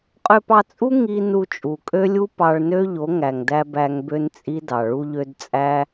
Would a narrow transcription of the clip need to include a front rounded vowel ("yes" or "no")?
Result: yes